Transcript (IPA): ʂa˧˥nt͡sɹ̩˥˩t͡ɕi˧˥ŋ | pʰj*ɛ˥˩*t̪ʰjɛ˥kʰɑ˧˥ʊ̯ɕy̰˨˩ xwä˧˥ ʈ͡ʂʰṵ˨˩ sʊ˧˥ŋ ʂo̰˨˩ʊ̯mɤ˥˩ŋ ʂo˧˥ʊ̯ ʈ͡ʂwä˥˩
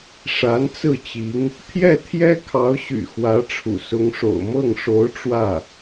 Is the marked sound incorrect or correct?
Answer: correct